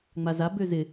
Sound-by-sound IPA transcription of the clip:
ŋ͡m a z a b ø z ɪ

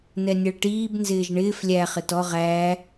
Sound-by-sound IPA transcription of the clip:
n ɛ nʲ ɛ ɭ ʈ iː b n z ɪː ʒ ɳ ɪː f lʲ æ χ ɪ t ɔ ʁ æː

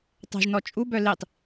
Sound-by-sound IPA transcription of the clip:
tˤ ɛ̤ ʒ n ɔ t͡ʃʼ u b œ l i tˤ

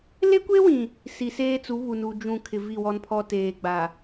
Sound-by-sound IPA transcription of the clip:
l e˦ kʷ e˦ w ĩ˨ | s i˨ s eː˦ t͡s u˨˦ β u˨ n u˨ d͡ʒ ũ˦˨ kʰ ɪ˨ v i˦˨ w ɔ˦ n pʰ ɔ˦ t eː˨ ɡ͡b a˨

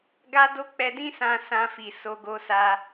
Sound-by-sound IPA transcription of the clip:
ɡ a˦ d o˦ k͡p ɛ˧ d ĩ˦ s ã˧ s ã˧ f i˨ s o˧ ɡ o˧ s a˧

